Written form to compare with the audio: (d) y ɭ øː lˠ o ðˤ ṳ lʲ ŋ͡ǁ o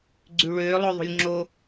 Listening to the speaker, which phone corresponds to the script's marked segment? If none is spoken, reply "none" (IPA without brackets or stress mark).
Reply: ɡ͡ǀ